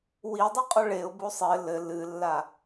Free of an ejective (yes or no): no